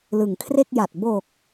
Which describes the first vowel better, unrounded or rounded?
unrounded